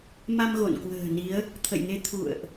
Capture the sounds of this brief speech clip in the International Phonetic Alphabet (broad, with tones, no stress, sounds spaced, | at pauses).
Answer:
m a˧ m ɣ o̰˧˨ n k w ə̤ː˨˩ n i˨˦ ə̯ | t̪ʰ ə̰˧˨ j ŋ e˧ t̪ʰ ṵ˧˨ ə̯ ʔ